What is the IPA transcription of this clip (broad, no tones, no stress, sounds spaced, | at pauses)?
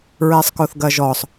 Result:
ɹ ɛ sˤ k o θ ɡ ɐ ʒ ɔ sˤ